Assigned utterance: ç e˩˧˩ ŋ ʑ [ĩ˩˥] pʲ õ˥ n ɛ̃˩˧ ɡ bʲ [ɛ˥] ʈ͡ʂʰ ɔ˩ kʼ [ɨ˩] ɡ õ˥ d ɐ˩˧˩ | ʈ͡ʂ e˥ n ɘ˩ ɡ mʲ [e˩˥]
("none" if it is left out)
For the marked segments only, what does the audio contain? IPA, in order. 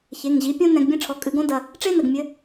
i˩˥, ɛ̃˥, ɨ˩˧, ɘ˩˥

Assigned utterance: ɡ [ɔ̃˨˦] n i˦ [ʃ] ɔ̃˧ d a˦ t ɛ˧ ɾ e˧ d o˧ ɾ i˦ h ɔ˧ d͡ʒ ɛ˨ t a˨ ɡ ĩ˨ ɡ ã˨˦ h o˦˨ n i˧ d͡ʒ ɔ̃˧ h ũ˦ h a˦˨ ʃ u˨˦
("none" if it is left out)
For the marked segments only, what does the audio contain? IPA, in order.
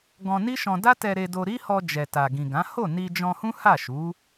ɔ̃˧, ʃ

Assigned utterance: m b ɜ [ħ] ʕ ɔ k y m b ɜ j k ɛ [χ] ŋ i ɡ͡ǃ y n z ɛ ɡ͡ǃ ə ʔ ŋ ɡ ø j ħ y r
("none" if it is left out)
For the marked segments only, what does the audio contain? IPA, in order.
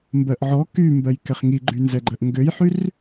ʔ, χ

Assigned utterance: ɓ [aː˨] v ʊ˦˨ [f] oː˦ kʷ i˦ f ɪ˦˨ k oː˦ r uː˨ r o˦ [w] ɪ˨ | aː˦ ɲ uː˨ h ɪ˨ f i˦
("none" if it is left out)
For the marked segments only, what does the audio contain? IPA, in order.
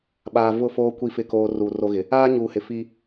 aː˨, f, ɣ

